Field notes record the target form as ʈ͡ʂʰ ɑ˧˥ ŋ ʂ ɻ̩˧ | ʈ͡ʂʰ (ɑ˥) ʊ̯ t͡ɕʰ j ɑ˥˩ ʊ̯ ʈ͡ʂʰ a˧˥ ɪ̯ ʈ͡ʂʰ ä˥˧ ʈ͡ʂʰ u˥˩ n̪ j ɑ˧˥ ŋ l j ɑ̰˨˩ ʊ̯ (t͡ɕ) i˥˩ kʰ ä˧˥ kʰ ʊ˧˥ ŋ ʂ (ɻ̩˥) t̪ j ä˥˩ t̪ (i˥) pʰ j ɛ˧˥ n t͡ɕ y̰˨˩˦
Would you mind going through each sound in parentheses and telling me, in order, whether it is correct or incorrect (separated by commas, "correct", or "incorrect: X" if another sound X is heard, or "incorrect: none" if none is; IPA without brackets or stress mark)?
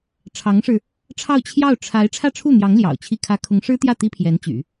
incorrect: ɑ˥˧, incorrect: t͡ɕʰ, correct, correct